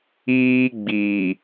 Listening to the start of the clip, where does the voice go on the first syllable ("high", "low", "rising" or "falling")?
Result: high